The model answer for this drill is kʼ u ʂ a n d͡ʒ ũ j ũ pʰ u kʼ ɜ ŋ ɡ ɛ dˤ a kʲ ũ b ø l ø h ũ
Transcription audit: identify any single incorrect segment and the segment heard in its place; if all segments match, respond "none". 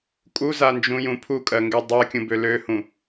ʂ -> z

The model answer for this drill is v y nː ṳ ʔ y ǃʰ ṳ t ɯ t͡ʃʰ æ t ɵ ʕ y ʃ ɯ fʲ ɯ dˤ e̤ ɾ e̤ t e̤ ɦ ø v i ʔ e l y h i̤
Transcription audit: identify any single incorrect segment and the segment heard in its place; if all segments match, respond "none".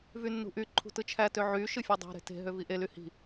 ɵ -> ø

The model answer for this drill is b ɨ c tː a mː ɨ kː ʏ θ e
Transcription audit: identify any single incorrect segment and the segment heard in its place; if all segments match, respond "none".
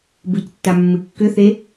none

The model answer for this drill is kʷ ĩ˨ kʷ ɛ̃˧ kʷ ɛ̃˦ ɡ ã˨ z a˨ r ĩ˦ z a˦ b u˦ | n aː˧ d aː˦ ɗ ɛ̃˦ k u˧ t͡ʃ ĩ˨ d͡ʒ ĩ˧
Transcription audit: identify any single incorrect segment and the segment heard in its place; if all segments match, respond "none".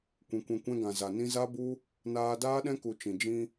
r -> n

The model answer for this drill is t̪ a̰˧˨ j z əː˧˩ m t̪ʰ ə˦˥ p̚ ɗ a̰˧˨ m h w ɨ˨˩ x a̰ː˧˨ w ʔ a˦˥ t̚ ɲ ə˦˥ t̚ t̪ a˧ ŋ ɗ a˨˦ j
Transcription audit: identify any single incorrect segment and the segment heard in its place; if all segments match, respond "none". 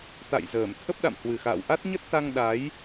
none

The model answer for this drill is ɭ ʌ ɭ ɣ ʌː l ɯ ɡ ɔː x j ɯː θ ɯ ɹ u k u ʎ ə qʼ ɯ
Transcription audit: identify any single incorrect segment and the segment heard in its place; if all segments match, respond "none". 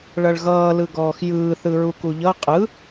ə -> ʌ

